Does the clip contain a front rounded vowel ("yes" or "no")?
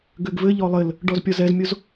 yes